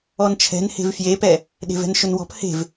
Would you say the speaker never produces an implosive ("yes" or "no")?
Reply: no